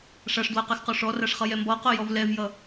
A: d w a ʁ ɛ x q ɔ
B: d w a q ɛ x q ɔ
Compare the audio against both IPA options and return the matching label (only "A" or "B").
B